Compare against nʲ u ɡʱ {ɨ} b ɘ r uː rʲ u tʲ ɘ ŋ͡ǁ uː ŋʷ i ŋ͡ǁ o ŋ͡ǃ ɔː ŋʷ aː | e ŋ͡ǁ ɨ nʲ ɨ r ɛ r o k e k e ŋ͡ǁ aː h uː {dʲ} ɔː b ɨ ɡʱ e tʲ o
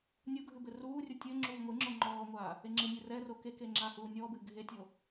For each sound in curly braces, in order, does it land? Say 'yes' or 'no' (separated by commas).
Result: yes, no